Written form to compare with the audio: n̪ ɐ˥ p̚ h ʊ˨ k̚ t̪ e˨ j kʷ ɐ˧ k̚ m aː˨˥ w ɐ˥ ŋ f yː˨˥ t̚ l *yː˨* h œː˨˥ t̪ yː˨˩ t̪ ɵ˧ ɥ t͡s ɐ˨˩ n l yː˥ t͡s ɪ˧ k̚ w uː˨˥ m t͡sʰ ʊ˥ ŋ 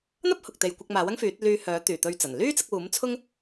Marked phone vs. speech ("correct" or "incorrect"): incorrect